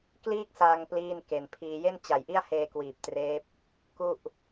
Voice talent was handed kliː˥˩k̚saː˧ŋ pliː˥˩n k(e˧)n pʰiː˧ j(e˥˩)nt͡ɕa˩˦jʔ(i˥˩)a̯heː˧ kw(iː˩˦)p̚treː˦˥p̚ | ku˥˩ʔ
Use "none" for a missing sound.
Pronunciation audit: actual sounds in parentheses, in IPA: e˧, e˥˩, i˥˩, iː˨˩

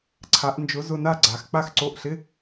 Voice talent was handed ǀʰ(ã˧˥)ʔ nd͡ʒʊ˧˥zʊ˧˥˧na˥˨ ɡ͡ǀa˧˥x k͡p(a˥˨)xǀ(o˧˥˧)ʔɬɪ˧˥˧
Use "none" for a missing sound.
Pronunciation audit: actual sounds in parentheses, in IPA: a˧˥, a˥˨, o˧˥˧

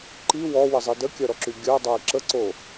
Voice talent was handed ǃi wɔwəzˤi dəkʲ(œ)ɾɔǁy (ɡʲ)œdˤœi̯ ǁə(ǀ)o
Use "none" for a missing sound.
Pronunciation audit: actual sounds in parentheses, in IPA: œ, ɡʲ, ǀ

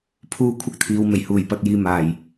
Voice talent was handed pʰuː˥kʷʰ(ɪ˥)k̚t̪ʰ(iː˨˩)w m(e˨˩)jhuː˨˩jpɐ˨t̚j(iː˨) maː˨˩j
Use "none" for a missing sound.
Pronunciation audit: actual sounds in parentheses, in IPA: ɪ˥, iː˨˧, e˨˩, iː˨

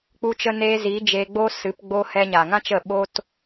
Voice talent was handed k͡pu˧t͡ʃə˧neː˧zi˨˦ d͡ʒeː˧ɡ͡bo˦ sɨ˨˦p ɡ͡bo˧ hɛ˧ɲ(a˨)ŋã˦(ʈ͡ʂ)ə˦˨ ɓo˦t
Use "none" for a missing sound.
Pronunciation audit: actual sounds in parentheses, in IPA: a˨, t͡ʃ

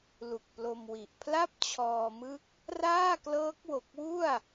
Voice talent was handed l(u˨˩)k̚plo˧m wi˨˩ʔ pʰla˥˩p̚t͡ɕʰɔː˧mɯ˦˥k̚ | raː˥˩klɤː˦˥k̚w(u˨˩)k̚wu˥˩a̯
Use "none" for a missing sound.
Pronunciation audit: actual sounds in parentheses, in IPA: u˨˩, o˨˩

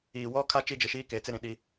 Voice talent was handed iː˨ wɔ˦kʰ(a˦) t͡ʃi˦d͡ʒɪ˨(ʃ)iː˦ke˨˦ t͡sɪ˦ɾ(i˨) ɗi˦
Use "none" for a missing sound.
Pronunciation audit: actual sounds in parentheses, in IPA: a˦, ʃ, ĩ˨

